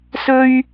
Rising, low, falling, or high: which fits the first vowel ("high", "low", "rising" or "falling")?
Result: high